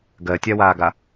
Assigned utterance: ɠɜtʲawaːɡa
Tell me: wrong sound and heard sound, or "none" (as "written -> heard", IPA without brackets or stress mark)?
ɠ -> ɡ